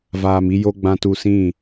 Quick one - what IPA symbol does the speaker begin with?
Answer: v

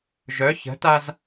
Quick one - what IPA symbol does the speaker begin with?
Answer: ʒ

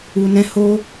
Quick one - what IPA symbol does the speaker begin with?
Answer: u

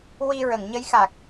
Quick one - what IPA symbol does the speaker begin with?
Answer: w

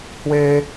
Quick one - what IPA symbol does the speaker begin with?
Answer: h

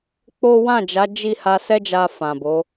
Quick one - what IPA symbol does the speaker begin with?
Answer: k͡p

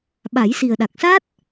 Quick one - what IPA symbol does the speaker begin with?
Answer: ɓ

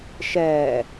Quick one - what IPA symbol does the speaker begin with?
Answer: ʃ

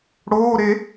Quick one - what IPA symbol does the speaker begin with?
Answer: ɽ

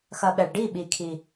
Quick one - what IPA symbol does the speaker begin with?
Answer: x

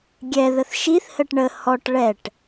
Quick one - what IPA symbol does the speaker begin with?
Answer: ɡʲ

